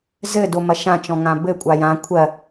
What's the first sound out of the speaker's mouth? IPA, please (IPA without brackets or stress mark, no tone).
z